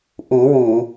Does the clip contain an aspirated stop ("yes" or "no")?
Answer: no